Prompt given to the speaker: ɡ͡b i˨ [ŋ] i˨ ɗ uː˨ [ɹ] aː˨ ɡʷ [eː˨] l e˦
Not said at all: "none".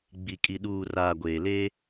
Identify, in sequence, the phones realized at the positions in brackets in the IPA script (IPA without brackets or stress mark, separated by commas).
kʼ, r, eː˨